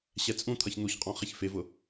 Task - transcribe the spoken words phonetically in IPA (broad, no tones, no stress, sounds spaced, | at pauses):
ɕ ɛ t͡sʼ ũ t̪ʰ ʌ ç n̪ u ç qʼ ɔ̃ χ ɪ ç f ɪ v ʊ